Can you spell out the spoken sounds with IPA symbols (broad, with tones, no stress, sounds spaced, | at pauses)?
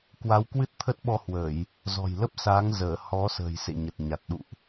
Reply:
k w a˨˦ w k w ɨ˦˥ t̚ t̪ʰ ə˦˥ t̚ ɓ ɔ˧ h w əː˧˩˨ j | z ɔ̤˨˩ j l ə˦˥ p̚ s aː˨˦ ŋ z əː˧˩ h ɔ˨˦ s ə̤ː˨˩ j s ḛ˧˨ ɲ ə˨˩ t̚ ɲ a˨˩ t̚ ɗ ṵ˧˨ ʔ